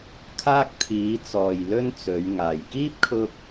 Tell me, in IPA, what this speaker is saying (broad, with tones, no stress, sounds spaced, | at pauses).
kʰ aː˥ k̚ t̪ʰ iː˨˧ t͡s ɔː˨ j l ɵ˥ n t͡s ɵ˨˧ ɥ ŋ aː˨ j k iː˥ p̚ kʰ ʊ˧ k̚